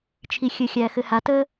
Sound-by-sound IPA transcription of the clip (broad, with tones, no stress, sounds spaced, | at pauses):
t͡ʃʰ i˨ xʲ ɘ˨ xʲ æ˨ x ɘ˨ h a˨ t ə˦